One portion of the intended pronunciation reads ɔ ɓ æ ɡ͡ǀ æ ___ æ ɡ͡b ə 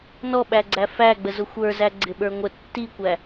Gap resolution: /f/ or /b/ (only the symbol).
f